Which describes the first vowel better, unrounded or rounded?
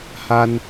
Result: unrounded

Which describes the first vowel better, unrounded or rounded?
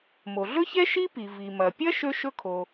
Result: rounded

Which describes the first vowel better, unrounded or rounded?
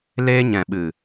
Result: unrounded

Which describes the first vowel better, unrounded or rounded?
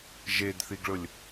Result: unrounded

